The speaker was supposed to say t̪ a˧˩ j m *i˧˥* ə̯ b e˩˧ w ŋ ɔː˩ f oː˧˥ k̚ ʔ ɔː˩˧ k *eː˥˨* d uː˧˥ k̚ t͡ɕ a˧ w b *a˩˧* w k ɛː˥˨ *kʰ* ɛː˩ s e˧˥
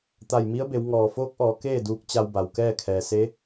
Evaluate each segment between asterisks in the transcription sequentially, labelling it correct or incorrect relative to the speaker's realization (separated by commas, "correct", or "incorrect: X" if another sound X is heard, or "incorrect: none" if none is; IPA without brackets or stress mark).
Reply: correct, correct, incorrect: a˩, correct